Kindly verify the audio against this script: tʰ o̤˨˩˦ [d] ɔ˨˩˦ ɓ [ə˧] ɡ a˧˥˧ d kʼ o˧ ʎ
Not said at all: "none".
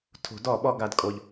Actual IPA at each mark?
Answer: d, ɔ˧

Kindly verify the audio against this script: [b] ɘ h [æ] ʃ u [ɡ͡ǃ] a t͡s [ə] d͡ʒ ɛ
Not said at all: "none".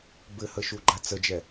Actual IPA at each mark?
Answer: b, ə, ɡ͡ǃ, ə

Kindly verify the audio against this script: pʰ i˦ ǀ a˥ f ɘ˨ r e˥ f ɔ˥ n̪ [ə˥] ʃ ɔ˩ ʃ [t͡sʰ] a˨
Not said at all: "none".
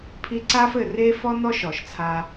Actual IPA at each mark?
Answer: ɔ˥, t͡sʰ

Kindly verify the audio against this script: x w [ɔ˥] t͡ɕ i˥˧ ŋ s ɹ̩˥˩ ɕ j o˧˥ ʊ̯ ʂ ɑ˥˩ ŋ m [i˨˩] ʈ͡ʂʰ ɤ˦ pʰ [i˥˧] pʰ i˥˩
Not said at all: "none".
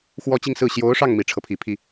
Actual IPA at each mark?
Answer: ɔ˥˧, i˨˩, i˨˩

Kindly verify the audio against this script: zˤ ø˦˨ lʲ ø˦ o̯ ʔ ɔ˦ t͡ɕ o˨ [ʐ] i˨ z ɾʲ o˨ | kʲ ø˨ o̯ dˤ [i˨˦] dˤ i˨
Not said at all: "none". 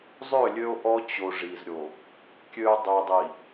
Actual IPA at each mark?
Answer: ʐ, i˨

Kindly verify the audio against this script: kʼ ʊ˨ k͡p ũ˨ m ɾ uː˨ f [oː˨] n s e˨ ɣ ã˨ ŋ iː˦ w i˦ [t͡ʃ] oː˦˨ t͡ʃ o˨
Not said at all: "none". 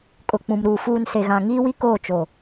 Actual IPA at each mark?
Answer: uː˨, k

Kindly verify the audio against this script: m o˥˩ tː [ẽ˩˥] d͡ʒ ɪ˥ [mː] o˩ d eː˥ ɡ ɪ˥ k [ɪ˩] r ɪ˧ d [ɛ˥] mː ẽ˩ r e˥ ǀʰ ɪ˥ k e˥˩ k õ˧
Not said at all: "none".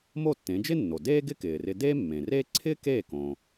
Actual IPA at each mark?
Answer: ẽ˩˥, nː, ɪː˩, e˥

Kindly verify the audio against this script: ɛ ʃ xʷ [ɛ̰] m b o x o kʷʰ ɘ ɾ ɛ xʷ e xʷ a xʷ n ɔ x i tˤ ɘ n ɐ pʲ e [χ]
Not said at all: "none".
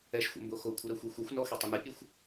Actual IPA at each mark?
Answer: ɛ̰, xʷ

